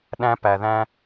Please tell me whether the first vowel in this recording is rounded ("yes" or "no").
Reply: no